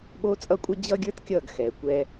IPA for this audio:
ɓoː˦t͡sʼʌ˦kʷʼʌ˦ d͡ʑʌ˦ɡʲə˞˦t kʲʌː˦˨ɡxɛː˨kʷɛ˦

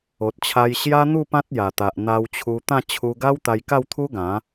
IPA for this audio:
o˨t̚t͡ɕʰa˧jɕja˦n̪u˥˧ pã˦t̚ja˨˩t̪a˨ʔn̪a˧w t͡ɕʰu˧t̪ã˥˧ t͡ɕʰu˧ ɡa˦wt̪a˧j ka˥˧wt̪ʰu˦ɡã˨˦

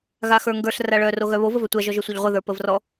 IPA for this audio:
ɣaxə˞ŋɡə˞ɬ raɭœ roɣœβo vəvœtʷæ ʒɔʒœsʷœʎʁʷə ðə˞pəvrɔ

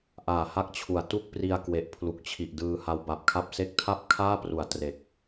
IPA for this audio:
ʔaː˨˩ha˥˩k̚t͡ɕʰu˨˩a̯ tu˥˩k̚pri˧a̯ kwe˨˩ʔpʰlu˨˩k̚t͡ɕʰi˨˩ʔdɯː˧ ha˧wba˨˩p̚kʰa˦˥p̚ se˦˥k̚tʰa˥˩p̚kʰaː˥˩pru˩˦a̯ tre˨˩k̚

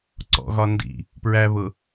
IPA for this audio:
ǀɔ̰ɣɒ ndḭ | pɹæ βʊ

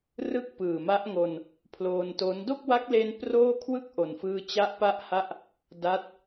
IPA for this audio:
rɯ˥˩k̚pɯː˨˩ma˦˥ʔ ŋo˧n | pʰloː˧nto˦˥n do˥˩k̚wa˦˥k̚le˧n proː˥˩ kʰwɯ˥˩k̚ʔo˨˩nfɯː˧ t͡ɕa˦˥ʔpa˦˥ʔha˦˥ʔ | da˦˥t̚

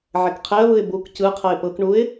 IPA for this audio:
ʕɛkqʰɛə̯βɯɪ̯ buk cɯqʰɤɪ̯ pɤkɳuɪ̯

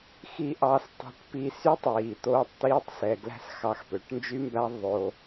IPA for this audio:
xi˧ʔɑ˧s tˤɛ̤˧ʈ pi˧sy˦tˤwiː˨ t̪oː˧tˤt̪iː˧tˤ sɛ˨ɡlæ̤˧s xɑ˧xpø˨˦ʈnd͡ʒy˦mbæ˦ ðˤo˧

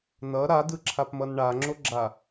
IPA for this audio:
nʌ ɾadɯǁʰapmʌn ɳaŋ͡ǁoɡ͡ǁa

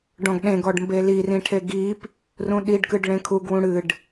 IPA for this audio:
ɖɔ̃ɡɗẽɡɔɖmbe lirĩʈʰe ɡip | rũɗiɖkɨɖ ɭẽkʰuɡwũ ɽɨɖ

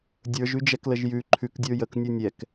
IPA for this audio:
dʲə˞ʒʉd͡ʒɛkləʒ jʉ ǃʰʉkdʲə˞ jəknʲo nʲɛk

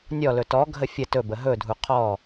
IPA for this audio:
nʲɔlɵ tɔɡʱə fʲə tɵbə ɦɵdʱu qʰɔ

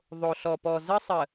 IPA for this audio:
ðˤo˨ɬɔ˨pɔ˨ zə˦sˤə˨

